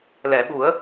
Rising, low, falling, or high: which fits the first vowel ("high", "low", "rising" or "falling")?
low